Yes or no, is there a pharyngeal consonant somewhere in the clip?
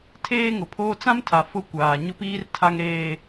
no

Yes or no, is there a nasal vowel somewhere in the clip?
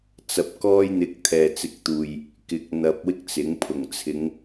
no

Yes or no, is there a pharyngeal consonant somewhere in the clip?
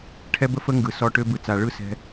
no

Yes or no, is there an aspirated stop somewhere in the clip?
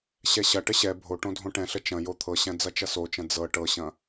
yes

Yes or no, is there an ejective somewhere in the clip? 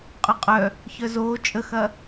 yes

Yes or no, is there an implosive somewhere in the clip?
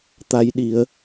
yes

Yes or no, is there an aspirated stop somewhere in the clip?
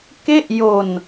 no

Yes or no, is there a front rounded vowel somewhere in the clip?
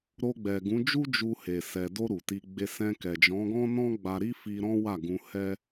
no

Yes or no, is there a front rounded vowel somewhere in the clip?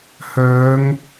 yes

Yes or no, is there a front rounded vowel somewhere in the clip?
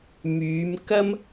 yes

